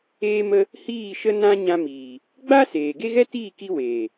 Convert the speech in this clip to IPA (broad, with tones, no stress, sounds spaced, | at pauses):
eː˧ m ə˧ | h iː˦˨ ʃ ə˦ n ã˦ ɲ ã˧ m iː˨ | ɡ͡b a˦ s eː˨ ɡ e˦ ɣ ɛ˦ t iː˦˨ k i˧ w eː˨